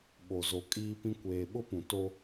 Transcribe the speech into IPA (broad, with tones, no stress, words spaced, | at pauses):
ɓo˨zo˨ kʼiː˦pĩ˦ kʷeː˨ɓʊ˦ pũ˨ to˦